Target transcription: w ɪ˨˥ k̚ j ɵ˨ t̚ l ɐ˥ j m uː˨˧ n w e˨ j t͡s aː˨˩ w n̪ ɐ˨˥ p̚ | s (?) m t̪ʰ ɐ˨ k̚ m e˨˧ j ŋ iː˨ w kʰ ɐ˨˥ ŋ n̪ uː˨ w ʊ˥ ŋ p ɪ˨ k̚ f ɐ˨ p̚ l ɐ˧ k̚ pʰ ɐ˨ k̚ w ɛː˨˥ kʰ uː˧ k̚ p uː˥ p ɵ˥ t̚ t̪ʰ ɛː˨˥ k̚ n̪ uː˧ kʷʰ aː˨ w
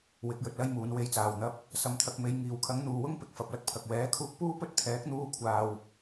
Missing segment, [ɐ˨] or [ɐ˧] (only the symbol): ɐ˨